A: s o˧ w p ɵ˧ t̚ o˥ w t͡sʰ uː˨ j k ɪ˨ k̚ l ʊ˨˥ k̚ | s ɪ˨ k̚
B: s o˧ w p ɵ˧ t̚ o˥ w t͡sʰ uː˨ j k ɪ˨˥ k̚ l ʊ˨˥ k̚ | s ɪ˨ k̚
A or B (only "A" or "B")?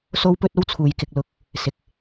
A